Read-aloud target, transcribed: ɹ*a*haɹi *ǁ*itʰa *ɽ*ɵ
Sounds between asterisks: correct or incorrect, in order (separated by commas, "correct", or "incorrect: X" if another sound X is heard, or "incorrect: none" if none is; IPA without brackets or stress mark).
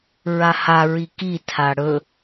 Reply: correct, incorrect: k, correct